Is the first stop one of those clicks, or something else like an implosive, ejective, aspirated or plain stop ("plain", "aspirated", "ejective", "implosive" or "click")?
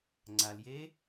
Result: click